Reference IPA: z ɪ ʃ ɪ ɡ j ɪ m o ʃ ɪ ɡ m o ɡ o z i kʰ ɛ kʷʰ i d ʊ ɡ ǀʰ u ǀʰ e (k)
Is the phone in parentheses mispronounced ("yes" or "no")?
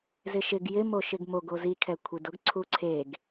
yes